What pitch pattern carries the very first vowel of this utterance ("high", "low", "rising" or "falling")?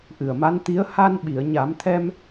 low